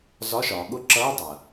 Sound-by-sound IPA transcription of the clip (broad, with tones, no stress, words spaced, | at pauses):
zɒ˧˥˧ʃɒː˩˧ ɠʊ˦˥ ǁʌː˧˥˧dˤæ˩ɐ̯